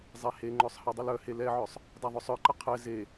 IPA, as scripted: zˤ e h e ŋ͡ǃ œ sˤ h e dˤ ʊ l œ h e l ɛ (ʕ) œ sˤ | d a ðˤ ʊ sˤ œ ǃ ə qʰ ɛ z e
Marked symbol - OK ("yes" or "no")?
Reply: yes